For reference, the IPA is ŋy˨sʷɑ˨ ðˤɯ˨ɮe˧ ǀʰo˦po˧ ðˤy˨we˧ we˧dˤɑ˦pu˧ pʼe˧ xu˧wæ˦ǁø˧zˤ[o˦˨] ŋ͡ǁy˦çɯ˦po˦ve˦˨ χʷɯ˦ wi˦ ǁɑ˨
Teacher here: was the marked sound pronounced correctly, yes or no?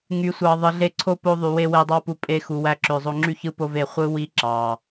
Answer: no